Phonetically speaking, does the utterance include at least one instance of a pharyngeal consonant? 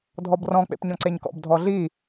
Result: no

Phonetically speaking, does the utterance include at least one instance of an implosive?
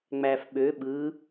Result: yes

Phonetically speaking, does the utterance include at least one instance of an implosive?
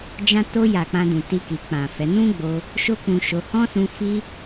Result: no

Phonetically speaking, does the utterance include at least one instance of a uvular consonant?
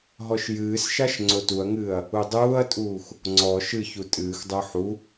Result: no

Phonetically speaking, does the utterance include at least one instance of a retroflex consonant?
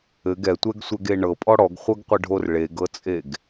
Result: yes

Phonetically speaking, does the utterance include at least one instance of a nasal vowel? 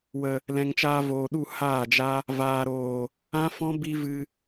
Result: yes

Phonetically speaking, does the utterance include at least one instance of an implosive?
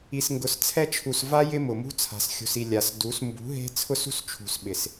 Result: yes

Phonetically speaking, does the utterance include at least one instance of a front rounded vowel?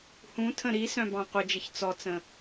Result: yes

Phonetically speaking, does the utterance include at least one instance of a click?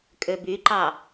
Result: yes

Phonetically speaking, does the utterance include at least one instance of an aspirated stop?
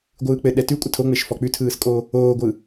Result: yes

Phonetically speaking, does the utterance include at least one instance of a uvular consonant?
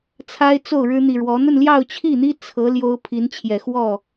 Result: no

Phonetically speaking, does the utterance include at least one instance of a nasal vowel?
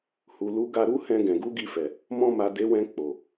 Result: yes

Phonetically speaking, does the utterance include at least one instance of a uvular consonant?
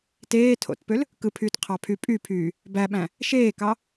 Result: yes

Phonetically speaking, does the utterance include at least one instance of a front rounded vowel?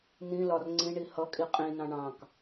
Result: no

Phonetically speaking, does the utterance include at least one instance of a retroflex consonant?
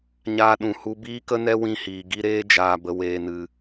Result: no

